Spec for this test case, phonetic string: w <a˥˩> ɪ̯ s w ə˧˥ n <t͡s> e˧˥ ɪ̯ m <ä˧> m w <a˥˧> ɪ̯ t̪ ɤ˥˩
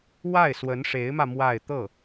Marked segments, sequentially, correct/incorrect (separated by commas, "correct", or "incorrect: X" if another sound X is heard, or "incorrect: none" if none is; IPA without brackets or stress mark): correct, incorrect: ʂ, correct, correct